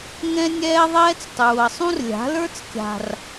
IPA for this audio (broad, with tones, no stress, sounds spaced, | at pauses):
ŋ ɛ̃˦ nʲ ɛː˦ ðˤ ɛː˦ t͡s tˤ uː˨ ə̯ sˤ ũ˦ r lʲ a̤˨˦ l ə˞˦ t͡s kʲ a̤˨ r